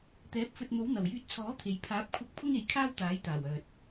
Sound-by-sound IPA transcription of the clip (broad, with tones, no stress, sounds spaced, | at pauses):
t̪ ɛː˨˥ p̚ f ɵ˧ t̚ n̪ o˨˥ w n̪ ɐ˨˩ w j yː˧ t̚ t͡sʰ ɔː˨˥ t̪ʰ e˨ j pʰ aː˨˥ p̚ kʷʰ ɐ˧ k̚ pʰ ʊ˥ ŋ e˨˧ j kʰ aː˥ w t̪ aː˨˥ j t̪ aː˨˩ w œː˨ t̚